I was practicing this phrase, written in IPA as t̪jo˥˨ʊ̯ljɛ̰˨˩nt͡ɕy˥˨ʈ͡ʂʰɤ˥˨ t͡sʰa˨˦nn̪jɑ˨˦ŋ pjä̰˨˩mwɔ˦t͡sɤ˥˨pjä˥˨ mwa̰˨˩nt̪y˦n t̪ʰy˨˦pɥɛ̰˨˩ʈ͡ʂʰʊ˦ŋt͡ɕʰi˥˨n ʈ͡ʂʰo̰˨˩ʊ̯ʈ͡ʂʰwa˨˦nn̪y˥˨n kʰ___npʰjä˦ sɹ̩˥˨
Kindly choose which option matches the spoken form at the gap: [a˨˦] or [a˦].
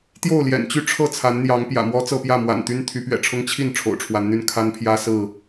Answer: a˦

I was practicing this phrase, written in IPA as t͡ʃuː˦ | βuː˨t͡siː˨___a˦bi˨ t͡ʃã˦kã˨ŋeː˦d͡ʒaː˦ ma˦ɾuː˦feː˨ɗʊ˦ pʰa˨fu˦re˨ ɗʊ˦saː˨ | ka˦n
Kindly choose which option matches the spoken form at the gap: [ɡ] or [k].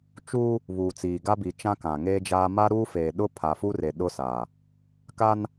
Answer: ɡ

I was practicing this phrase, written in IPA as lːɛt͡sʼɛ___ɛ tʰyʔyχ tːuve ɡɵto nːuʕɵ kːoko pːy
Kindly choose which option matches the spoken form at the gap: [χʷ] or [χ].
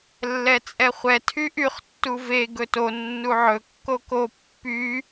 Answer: χʷ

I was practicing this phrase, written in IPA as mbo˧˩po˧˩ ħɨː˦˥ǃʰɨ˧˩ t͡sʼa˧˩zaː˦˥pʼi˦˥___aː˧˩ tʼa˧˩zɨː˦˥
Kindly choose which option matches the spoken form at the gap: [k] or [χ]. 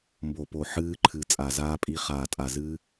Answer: χ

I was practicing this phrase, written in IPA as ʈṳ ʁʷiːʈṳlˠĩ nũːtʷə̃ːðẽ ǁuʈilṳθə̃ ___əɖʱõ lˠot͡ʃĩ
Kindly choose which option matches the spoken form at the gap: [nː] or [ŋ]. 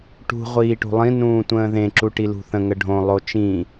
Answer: ŋ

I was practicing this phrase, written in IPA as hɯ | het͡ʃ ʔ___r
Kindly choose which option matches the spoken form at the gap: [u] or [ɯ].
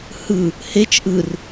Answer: ɯ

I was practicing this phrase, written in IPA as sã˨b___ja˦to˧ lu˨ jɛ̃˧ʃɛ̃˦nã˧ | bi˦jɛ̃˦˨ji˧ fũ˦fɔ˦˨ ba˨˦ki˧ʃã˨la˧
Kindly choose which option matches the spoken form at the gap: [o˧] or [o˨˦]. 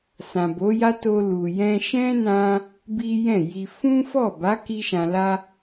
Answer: o˨˦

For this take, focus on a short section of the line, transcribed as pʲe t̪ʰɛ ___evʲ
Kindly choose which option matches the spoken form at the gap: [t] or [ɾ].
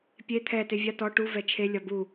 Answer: t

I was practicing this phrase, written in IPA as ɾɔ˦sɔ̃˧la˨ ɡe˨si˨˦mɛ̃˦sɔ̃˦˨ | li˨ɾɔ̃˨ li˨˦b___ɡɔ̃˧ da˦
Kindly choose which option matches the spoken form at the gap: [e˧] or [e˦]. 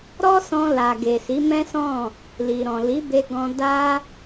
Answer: e˧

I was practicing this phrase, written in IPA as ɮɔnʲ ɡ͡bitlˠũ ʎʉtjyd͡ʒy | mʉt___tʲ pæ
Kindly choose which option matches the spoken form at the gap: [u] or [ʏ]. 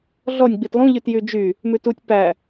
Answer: u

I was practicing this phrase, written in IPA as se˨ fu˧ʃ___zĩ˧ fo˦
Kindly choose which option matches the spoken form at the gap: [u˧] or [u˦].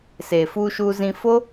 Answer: u˧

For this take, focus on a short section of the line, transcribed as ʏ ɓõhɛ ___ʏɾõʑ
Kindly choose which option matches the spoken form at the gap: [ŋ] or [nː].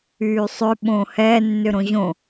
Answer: nː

